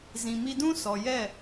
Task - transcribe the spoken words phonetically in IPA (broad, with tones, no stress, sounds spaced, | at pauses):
z ĩ˨ m i˧ d ũ˦ s ɔ˨ j ɛ˦˨